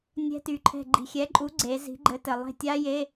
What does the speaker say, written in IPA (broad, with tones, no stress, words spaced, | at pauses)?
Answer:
nʲɛ̤˦˥ty˨˥ǃʰɛ̤˦˨ ɡ͡ǃi̤˨xʲɛ˨˥ǃʼu˨˥ ɡ͡ǀe˨˥ zi̤˨˥ɡ͡ǃɘ˨˥tɘ˨ lˠe̤˦˨tʲa˦˥je˧˥˧